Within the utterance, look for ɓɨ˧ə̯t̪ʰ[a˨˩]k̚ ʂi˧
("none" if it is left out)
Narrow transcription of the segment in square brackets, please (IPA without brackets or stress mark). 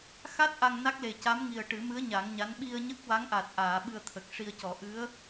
ə˨˩